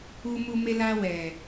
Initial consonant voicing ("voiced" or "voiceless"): voiced